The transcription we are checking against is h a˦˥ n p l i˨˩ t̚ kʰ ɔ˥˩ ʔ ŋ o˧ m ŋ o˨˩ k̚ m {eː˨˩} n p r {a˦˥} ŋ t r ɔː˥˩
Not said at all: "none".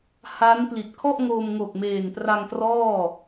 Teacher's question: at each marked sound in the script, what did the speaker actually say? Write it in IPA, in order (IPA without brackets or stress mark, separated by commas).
eː˨˩, a˧